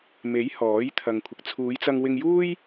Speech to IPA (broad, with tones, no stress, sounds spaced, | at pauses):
m e˨˥ j h ɔː˨˥ j t̪ʰ ɐ˨ ŋ kʷʰ ɪ˨˥ k̚ t͡sʰ uː˨˧ j t͡s ɐ˧ ŋ w ɪ˧ ŋ j uː˥ j